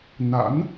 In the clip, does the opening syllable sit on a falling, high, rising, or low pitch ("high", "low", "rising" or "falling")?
rising